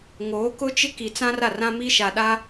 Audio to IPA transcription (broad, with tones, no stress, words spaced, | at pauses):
ŋoː˨˦kʊ˦t͡ʃɪ˦ ki˨t͡sã˦ra˦˨ rã˦mi˦ʃa˨ ɗa˦